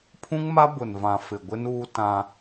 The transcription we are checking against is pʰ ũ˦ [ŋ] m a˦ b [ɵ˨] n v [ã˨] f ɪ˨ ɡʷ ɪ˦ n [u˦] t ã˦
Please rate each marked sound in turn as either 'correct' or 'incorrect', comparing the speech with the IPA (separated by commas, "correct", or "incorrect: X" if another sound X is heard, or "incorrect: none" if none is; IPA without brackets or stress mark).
correct, incorrect: ʊ˨, correct, incorrect: uː˦